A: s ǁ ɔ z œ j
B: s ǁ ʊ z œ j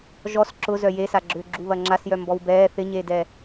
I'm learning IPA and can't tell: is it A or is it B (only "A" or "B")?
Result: B